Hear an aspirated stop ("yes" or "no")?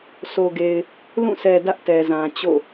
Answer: no